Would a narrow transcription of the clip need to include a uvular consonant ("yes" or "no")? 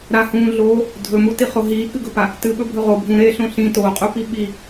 yes